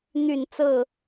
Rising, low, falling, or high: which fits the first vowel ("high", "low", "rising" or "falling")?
falling